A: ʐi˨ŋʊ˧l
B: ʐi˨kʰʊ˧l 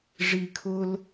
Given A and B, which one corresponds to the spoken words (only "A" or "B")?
B